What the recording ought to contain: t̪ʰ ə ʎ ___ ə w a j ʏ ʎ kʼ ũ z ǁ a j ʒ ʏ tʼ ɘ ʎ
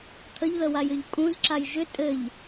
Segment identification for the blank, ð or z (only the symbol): ð